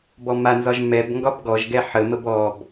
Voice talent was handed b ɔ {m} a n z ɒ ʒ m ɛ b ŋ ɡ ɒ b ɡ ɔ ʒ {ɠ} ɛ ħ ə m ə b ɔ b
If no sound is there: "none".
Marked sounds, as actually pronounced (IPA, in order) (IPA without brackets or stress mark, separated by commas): m, ɡ